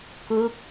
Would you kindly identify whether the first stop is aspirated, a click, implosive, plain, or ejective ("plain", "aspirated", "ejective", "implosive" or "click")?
plain